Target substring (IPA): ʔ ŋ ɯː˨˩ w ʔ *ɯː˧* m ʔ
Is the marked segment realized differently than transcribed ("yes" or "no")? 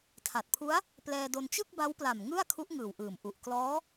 yes